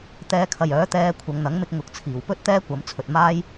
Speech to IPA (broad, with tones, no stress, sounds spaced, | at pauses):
t̪ ɛː˧ kʰ ɐ˨ j œː˨˥ t̪ ɛː˧ kʷʰ ɐ˨˧ ŋ n̪ ɐ˨˥ ŋ m ɪ˥ k̚ ŋ ʊ˧ k̚ t͡sʰ iː˨ w p ɵ˥ t̚ t̪ ɛː˥ kʷ ɐ˨˧ m t͡sʰ ɵ˨ t̚ m aː˥ j